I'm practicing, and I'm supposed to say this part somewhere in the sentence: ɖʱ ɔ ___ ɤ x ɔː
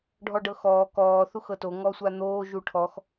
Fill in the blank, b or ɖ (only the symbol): ɖ